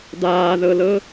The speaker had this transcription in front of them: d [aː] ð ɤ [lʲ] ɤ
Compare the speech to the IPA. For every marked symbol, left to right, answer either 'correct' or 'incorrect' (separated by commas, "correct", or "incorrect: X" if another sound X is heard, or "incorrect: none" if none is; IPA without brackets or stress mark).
correct, incorrect: l